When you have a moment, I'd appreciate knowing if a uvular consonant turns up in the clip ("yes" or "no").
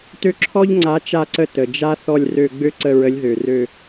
no